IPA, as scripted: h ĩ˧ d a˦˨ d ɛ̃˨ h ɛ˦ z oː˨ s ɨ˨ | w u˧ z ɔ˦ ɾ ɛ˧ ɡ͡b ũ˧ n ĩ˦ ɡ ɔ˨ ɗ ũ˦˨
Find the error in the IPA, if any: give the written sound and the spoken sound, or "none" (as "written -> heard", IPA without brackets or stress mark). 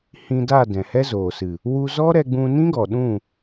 none